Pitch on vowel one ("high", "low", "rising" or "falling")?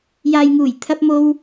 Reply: low